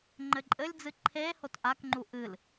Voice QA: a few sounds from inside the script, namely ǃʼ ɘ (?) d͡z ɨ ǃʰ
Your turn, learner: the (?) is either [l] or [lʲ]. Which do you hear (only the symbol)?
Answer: lʲ